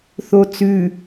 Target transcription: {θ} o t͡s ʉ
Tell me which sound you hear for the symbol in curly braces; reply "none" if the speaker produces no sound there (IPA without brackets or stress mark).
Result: θ